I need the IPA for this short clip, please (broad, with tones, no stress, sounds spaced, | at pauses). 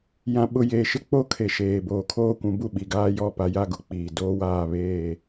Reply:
j ã˨ ɓ ʊ˨ j eː˨ ʃ ɪ˦ k͡p o˦ kʰ e˨ ʃ eː˨ b oː˨ kʰ oː˦˨ kʷ ũ˨˦ b u˦˨ ɓ i˨ ɡ aː˦ j ɔ˦˨ p a˦ j a˦ ɡ ʊ˨ k͡p iː˨ d oː˦ w aː˦˨ β eː˦˨